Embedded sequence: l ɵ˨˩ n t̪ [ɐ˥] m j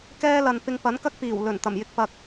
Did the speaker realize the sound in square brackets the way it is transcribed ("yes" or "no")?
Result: no